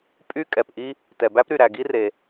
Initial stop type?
ejective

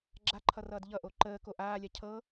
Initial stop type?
click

